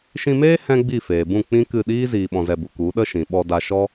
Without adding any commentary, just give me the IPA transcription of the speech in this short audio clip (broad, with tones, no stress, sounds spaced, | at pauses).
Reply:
ʃ ĩ˧ m eː˦ h ɛ̃˦ ɡ͡b i˦˨ f eː˨ b ũ˦˨ k͡p ĩ˦ k ɨ˦˨ ɗ iː˦ z iː˧ ɓ ɔ̃˧ z ɛ˧ b u˨ k u˨˦ ɗ ə˦ ʃ ĩ˨ ɓ ɔ˧ d a˧ ʃ ɔ˦